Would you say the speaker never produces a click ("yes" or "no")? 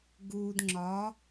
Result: no